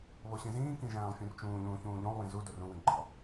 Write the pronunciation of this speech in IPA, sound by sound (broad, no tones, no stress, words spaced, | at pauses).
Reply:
βoɕĩzĩːkĩ ʒæ̃ːlˠfʲũrt͡ʃũːʎũː çũːʎũlˠwĩ zu dorũwĩ ɡ͡ǃɒ